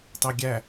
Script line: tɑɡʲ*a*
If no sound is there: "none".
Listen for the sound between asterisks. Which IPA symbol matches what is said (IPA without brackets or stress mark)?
æ